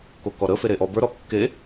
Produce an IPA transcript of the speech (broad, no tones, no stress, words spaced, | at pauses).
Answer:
kokɔɾə feɾeʔɔbə˞ ɾɔkːe